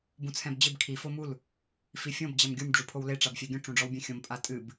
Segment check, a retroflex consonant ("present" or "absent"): present